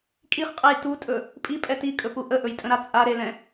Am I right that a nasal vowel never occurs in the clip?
no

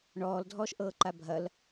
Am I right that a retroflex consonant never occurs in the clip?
no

